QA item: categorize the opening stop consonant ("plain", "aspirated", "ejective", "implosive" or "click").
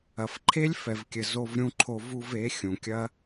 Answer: click